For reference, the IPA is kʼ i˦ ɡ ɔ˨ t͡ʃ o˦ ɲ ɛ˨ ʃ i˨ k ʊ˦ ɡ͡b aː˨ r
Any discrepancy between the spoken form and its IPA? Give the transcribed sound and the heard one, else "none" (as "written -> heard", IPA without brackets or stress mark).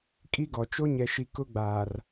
none